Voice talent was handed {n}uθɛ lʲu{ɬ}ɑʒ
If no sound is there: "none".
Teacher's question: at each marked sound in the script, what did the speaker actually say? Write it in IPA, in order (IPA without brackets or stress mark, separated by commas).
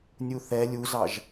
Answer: nʲ, z